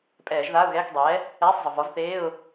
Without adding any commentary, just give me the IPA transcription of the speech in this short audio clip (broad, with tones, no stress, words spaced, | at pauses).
pʼɛː˧˩˧ʒðaː˧˥˧ʊ̯ɣɛː˧˥˧k dˤɛː˩˥ | ɛː˧˥˧sˤzˤə˩vɔ˩˥zθeː˧˥˧ʊ̯